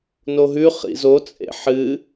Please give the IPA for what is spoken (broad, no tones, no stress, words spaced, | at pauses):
noɦʉχḭ zot͡sʼḛ ħɨ